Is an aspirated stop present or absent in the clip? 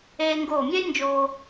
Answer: absent